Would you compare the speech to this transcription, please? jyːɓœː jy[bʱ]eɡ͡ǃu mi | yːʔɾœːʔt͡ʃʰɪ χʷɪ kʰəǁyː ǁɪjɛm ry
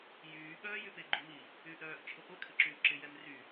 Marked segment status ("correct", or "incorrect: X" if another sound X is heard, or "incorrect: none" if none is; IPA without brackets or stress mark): incorrect: p